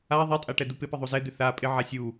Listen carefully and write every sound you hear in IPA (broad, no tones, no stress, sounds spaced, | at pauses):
a ðˤ ɛ tʼ a ʈ ɛ d̪ u p ɪ p ɪ ðˤ u z ɛ d̪ ɪ θ a pʼ ɪ ʕ a sʲ u